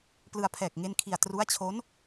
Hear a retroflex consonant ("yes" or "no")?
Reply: no